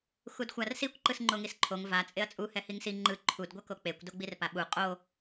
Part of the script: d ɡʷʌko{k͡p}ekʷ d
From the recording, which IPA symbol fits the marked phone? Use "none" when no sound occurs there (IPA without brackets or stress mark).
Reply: k͡p